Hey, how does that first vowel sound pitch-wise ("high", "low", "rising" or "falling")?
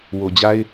low